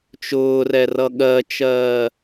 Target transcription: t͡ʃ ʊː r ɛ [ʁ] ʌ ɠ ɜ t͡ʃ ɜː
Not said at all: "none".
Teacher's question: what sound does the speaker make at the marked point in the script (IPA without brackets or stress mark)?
r